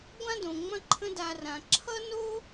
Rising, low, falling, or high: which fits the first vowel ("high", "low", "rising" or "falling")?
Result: high